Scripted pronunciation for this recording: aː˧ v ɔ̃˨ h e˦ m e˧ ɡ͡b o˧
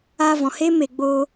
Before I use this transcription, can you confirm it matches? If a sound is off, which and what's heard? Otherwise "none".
none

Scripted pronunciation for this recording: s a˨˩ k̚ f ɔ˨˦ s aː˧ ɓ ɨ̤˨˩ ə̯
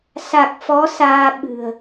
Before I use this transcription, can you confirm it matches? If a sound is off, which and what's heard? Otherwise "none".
none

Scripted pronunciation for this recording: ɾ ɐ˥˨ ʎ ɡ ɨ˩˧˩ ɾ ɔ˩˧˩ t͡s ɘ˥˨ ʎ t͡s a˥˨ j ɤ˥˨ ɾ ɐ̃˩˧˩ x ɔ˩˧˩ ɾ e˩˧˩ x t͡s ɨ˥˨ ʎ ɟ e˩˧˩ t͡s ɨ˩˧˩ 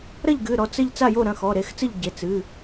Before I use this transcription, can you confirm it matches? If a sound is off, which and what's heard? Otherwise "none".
ɤ˥˨ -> o˥˨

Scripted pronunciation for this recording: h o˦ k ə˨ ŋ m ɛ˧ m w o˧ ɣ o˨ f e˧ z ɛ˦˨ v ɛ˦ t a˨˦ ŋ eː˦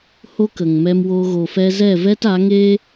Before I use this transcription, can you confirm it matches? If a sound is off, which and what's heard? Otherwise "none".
e˧ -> ɛ˧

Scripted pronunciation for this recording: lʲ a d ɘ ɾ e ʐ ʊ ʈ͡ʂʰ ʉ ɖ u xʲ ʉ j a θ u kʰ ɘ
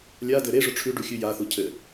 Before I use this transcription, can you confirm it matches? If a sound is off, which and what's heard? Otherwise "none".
kʰ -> cʰ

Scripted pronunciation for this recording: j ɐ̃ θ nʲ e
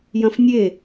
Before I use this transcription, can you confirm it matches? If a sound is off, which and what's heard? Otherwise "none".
θ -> f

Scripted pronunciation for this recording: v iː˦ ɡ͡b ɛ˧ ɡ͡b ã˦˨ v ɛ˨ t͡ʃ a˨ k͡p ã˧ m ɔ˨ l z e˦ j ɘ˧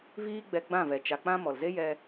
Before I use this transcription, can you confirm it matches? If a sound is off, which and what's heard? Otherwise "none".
ɘ˧ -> ɛ˧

